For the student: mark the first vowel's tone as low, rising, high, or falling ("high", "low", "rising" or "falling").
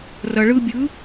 low